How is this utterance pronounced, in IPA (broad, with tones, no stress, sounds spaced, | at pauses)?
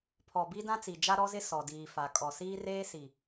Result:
pʰ ɔ˨ b i˦ d ã˦ t͡s i˨ d͡ʒ a˦ ɾ ɔ˦ z ɪ˦ s ɔ˨ d iː˨ f a˨ kʼ ɔ˨ s iː˦ r eː˦ s i˨